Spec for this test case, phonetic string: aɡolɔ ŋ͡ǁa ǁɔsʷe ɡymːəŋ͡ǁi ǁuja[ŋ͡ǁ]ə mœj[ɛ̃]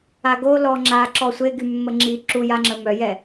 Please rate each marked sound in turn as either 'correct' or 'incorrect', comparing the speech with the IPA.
correct, incorrect: ɛ

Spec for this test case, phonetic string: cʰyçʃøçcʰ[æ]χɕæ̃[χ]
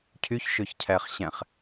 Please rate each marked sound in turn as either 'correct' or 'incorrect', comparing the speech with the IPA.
correct, correct

